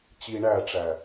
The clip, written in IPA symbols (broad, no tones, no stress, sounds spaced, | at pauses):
t͡ɕ i ɳ æ ʈ͡ʂ æ